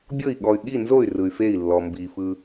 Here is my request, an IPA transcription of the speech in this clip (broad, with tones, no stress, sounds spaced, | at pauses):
bʲ ɤ˥˩ i̯ ɠ ɔ˨ y̯ ɠ i˥˩ n z o˥˩ y̯ r ɯ˨ y̯ f e˥˩ i̯ lː ɔ˨ m b i˨ f ɯ˨